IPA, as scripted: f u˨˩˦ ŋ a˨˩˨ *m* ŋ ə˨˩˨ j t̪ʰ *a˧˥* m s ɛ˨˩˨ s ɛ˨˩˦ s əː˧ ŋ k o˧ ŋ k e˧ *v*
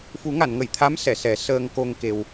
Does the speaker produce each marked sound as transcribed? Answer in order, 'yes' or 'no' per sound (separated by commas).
no, yes, no